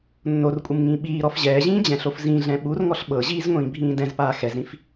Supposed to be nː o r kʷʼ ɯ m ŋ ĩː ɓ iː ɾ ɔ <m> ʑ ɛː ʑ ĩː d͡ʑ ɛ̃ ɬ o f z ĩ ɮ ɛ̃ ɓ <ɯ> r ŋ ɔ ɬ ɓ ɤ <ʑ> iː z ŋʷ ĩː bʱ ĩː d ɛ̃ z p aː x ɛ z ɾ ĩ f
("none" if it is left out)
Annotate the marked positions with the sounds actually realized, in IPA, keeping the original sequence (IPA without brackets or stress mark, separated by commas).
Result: f, u, ʑ